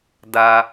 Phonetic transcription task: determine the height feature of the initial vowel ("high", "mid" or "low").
low